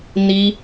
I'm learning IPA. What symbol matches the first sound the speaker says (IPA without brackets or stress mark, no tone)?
n